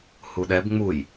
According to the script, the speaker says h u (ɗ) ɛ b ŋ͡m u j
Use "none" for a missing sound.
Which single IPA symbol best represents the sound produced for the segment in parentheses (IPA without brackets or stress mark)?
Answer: ɗ